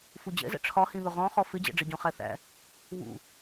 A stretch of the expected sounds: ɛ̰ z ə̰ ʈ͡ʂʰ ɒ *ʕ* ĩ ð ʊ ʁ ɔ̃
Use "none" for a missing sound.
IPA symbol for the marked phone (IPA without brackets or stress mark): h